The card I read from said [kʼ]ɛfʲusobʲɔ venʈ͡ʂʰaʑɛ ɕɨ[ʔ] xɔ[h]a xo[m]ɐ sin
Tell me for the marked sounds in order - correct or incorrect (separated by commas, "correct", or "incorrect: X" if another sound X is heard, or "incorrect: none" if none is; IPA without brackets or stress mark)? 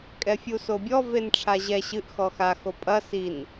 correct, correct, incorrect: x, incorrect: pʼ